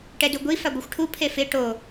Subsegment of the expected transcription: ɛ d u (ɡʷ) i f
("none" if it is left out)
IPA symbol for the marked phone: ɡʷ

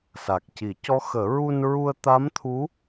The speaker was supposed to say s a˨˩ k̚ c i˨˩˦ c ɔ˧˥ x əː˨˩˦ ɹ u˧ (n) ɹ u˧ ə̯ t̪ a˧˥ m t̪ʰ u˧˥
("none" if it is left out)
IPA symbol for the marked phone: n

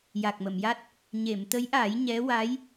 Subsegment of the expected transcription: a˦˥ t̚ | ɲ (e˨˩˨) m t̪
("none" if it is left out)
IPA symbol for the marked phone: e˨˩˨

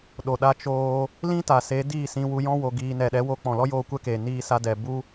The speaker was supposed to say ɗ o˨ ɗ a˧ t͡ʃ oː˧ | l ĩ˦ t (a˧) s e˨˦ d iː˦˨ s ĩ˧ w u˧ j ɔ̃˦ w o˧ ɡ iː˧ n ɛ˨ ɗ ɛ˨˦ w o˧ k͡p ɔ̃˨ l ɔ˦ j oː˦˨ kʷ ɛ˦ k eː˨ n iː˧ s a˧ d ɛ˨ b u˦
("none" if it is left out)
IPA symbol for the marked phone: a˨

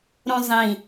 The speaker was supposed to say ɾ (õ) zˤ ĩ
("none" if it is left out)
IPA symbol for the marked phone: õ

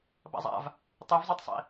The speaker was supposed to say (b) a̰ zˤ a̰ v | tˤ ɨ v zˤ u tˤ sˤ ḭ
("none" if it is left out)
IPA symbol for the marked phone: b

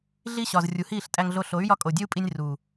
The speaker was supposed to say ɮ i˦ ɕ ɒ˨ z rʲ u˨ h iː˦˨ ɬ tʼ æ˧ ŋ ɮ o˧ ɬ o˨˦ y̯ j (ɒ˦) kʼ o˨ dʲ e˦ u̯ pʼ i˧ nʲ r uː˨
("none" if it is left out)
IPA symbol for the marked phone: ɒ˦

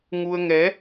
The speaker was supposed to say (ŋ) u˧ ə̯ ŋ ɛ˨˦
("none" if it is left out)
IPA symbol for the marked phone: ŋ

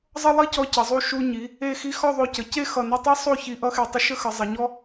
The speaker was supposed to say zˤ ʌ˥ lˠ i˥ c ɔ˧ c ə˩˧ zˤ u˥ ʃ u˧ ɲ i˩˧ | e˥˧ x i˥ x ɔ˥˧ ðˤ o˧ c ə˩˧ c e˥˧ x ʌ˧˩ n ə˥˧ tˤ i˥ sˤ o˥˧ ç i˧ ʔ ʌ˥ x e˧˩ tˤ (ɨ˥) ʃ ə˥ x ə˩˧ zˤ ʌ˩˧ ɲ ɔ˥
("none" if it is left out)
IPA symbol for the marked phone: ə˥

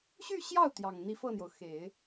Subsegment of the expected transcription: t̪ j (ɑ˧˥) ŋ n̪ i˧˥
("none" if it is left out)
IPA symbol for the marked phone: ɑ˨˩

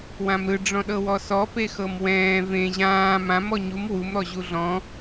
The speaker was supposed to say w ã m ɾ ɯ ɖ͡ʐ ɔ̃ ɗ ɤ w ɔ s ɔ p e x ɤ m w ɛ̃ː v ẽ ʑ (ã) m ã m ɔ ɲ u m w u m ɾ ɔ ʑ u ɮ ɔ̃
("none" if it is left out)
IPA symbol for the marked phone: ãː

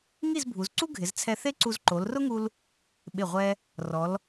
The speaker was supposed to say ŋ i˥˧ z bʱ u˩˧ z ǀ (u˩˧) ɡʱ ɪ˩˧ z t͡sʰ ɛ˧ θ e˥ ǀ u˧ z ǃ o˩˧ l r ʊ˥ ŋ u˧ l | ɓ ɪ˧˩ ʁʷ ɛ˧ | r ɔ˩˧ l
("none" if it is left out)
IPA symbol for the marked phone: u˥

